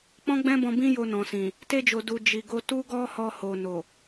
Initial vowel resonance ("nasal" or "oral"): nasal